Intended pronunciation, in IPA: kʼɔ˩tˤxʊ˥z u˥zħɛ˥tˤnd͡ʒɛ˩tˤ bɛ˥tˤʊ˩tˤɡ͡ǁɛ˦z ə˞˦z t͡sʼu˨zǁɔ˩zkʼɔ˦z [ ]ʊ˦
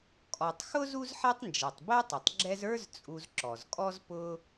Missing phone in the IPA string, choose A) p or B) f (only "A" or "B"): A